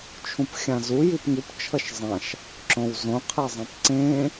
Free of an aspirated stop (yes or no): no